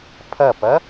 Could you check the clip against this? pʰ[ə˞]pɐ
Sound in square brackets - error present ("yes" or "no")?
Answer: yes